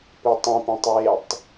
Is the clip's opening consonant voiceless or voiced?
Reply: voiceless